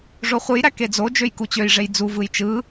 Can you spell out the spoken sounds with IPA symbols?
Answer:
ʐoχʷɯjɾæ ked͡zod͡ʒøj kut͡ɕøjʐej d͡zuvɯj t͡ʃɯ

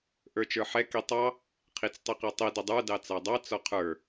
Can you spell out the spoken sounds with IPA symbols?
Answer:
ʔə˞t͡ʃə˞ħɛ kitˤɑ | qʰit͡stˤiqɛtˤi dədˤə˞ dɑt͡sɑdˤɑ t͡sɔqʰə˞

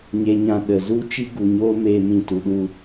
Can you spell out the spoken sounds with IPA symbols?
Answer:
ɲe˦ɲã˦ ɗə˨zu˦ t͡ʃi˦ɡu˨ɲoː˦meː˧ mĩ˧tu˨ɗu˧

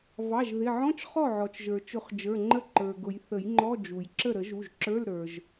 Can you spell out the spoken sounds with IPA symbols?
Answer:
vɑ˩˧˩ʒðɪ˩˧˩ʕɔ̃˧˥˧t͡ʃ χɔ˥˩ʕɔ˩t͡ʃʒə˞˩t͡ʃʊ˨˩˦χ d͡ʒə˞˩˧˩ŋ͡ǃə˥˩ǃə˞˩ɡʊ˨˩˦j θə˨˩˦jŋ͡ǃɔ˧˥˧ d͡ʒu˩jǁə˥˩ ɾə˨˩˦ʒu˩˧˩ʒǁə˞˧˥˧l ɾə˞˩ʒ

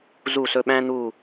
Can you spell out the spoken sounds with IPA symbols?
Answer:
zu˦˨sɵ˦˨ ɓæ̃˥n̪u˦˨

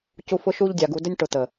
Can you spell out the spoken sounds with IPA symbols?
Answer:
cu˧fʊ˧ʃu˧ʎdʲa˨ ɡu˨də˧nʲ ʈʊ˨t̪ə˨

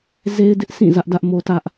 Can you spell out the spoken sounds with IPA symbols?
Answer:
ze˦ɪ̯dɪ˦ʔsʰĩ˦˨ zä˦ʔdä˦ʔmo˦tä˦ʔ

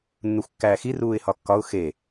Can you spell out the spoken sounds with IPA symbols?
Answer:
nːuxʷkːæːxi ruːɪ̯hɒkːɒʊ̯ xe

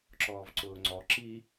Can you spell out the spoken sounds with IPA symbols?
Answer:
ǁɔːvǀʊːŋ͡ǀɔ ǁi

